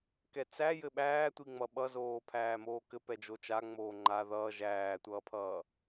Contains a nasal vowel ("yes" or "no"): no